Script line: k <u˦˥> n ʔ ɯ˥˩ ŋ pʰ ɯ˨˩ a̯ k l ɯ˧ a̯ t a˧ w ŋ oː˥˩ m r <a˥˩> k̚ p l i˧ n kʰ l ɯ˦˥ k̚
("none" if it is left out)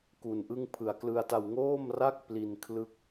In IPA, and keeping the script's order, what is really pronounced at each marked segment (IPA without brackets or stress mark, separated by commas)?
u˧, a˥˩